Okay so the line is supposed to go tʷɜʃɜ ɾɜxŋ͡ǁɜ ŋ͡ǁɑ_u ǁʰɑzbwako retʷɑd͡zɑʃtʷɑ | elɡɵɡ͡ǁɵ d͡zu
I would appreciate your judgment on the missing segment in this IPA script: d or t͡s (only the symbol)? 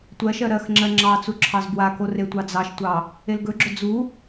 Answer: t͡s